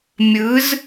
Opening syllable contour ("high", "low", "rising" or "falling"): rising